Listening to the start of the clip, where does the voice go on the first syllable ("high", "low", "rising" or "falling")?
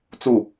falling